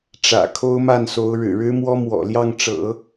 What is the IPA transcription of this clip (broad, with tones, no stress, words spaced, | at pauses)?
ʈ͡ʂä̰˨˩ kʰo˥ʊ̯ma˥˩nso˧˥ʊ̯ ɻɻ̩˨˩ɻɻ̩˥mwɔ˥ mwɔ̰˨˩ljɑ˥˩ŋʈ͡ʂɤ̰˨˩˦